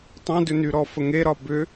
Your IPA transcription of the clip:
tˤ æ̃ d ʏ n y ɾ ɔ f ə ŋ e ɾ ɒ b ʏ

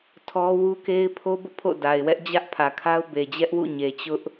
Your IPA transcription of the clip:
tʰ ɔ˦ w u˦ k e˦ ɪ̯ pʰ o˦ b ʊ˦ ʔ pʰ o̰˦˨ d a˨ ɪ̯ w ɛ˦ ʔ d͡ʑ ä˦ ʔ pʰ ä˨ kʰ a˦ ʊ̯ b e˨ d͡ʑ ɛ˦ ʔ w ṵ˦˨ ɲ e˨ t͡ɕ ʊ˦ ʔ

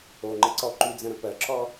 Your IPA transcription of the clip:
o ŋ͡ǃ ə ǀ ɔ ǃ y d͡z ə̃ ɾ ə̃ p ɜ ǁʰ ɔ

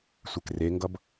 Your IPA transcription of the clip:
sʷ e k r e ŋ ɡ ʌ b

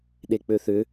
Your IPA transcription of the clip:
ɗ e k͡p ø θ ʏ

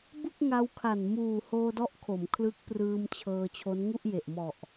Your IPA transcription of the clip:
b ɯ˥˩ k̚ ŋ a˧ w kʰ a˨˩ n m uː˨˩ h oː˧ d ɔ˦˥ ʔ kʰ o˩˦ m kʰ l ɯ˦˥ k̚ p r ɯː˧ m t͡ɕʰ ɤː˧ t͡ɕʰ o˦˥ n ŋ u˥˩ ʔ j e˨˩ ʔ m ɔ˨˩ ʔ

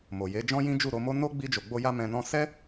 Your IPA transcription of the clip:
m o˨ j e˨˦ d͡ʒ ɔ̃˦ j ĩ˦ d͡ʒ u˦˨ ɾ o˧ m o˦ n o˦ ɡ͡b i˧ d͡ʒ o˨ ɡ͡b o˧ j a˧ m ɛ̃˧ n ɔ̃˦ s ɛ˦

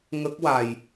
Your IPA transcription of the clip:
ŋ ə˦˥ k̚ w a˨˩ j

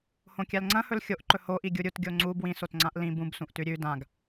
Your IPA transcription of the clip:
h õ kʲ a l ŋ͡ǀ ɐ̃ h ɵ l xʲ o ʔ ǃ ɵ h o ʔ i ɡʲ u ɾʲ u t ɡʲ o ŋ͡ǀ u b w ĩ s o t ŋ͡ǀ ã ʔ l ĩ b ũ b s ũ ʔ t ʉ ɾʲ ʉ d ã ɡ

